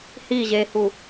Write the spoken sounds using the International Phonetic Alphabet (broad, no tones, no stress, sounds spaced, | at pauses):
h i ʑ e h u